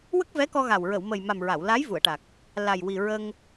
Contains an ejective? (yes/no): no